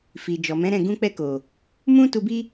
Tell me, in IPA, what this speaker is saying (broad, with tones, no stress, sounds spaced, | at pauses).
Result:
f i˨ d͡ʒ ɔ˨ m ɛ̃˨˦ ɾ ɛ̃˦˨ ɡ ũ˧ k͡p ɛ˧ k o˨ | m ũ˦ t u˧ b i˦